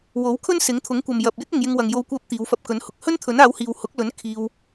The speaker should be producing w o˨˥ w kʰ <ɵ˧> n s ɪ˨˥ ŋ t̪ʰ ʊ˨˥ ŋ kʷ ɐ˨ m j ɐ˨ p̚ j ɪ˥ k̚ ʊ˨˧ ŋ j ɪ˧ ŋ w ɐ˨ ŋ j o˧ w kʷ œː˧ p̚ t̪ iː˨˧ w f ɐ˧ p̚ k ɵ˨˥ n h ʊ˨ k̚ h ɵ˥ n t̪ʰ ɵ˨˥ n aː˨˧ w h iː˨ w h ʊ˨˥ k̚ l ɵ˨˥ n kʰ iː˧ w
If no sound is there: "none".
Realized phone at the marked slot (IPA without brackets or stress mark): ɵ˥